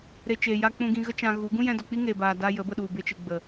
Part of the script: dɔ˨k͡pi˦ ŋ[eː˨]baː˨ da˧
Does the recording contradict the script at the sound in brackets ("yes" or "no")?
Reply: no